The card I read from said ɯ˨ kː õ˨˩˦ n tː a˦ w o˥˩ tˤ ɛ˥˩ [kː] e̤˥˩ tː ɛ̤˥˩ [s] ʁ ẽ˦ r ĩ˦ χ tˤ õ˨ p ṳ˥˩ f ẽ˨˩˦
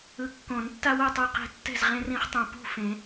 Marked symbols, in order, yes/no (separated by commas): no, no